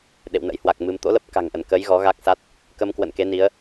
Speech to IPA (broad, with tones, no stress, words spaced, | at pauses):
ɗḛ˧˨wnə̰˧˥jhwa˨˩k̚mɨ˧m t̪o̰˧˥lə˦˥p̚ ka̤˨˩ŋʔə˧˩nkəː˨˦j ɣɔ˨˦ɣa˦˥k̚sa˦˥t̚ | kə˧m kwə̰˧˨n ke˨˦ni˨˦ə̯